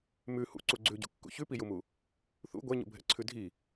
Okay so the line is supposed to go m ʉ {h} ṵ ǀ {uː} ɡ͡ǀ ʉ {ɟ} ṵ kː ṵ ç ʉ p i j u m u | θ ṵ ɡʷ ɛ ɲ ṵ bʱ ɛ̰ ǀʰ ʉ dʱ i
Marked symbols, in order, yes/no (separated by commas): yes, no, yes